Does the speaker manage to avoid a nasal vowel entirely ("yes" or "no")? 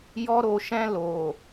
no